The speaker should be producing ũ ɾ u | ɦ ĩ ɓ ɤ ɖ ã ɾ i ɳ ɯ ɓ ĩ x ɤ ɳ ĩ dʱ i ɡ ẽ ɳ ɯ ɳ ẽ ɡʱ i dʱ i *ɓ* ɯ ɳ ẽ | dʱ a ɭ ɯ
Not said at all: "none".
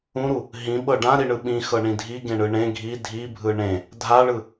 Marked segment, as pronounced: bʱ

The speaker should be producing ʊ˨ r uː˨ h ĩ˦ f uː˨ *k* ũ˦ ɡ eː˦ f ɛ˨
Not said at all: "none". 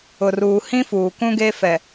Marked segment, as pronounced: k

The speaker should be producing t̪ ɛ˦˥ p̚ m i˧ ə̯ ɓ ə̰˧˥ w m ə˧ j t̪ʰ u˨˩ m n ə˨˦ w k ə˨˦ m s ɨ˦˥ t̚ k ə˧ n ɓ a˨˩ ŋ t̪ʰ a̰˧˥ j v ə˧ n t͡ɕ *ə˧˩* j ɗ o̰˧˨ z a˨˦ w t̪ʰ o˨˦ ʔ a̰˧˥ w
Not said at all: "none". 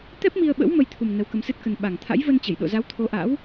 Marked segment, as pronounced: ə˧˩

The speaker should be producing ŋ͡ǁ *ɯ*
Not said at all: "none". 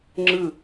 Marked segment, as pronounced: ɯ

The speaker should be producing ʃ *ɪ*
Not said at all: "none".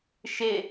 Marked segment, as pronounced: ɪ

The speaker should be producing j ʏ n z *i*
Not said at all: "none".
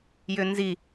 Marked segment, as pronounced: i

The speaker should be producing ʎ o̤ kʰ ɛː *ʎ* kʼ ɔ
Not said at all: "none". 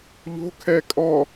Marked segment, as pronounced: none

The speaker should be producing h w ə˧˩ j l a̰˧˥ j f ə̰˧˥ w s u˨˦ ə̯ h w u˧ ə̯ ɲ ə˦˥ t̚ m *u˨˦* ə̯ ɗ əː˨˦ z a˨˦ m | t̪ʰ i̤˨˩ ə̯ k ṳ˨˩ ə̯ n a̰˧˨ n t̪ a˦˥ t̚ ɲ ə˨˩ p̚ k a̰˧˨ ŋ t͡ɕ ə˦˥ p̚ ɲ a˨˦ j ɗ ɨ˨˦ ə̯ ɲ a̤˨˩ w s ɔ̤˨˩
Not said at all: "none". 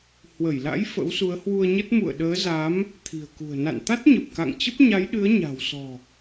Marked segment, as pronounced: ṵ˧˨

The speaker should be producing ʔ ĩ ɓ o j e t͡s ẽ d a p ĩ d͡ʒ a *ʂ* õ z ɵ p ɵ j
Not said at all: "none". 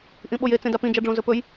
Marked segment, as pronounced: ɖ͡ʐ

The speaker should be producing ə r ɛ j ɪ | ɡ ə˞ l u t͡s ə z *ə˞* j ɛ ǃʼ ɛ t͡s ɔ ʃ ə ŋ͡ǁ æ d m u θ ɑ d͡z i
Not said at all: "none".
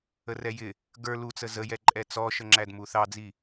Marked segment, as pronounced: ə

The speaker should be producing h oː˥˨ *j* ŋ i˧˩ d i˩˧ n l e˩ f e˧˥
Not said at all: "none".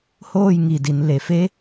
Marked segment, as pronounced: j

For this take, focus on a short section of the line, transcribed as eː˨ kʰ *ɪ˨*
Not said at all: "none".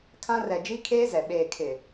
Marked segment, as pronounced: ɪ˨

